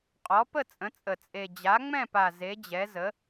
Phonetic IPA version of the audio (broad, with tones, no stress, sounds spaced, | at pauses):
qʼ ɔ˩˥ p ə˥˩ t͡sʼ ə̃˩˥ t͡sʼ ə˨˩ t͡sʼ e˨˩ d͡ʑ a˩˥ ŋ͡m ɛ̃˥˩ p a˨˩ z e˩˥ d͡ʑ ɛ˩˥ z ə˩˥